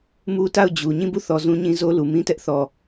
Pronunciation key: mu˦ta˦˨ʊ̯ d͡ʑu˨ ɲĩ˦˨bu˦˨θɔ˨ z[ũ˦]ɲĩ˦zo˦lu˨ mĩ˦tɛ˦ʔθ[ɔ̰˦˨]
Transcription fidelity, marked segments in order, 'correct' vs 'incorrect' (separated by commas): correct, incorrect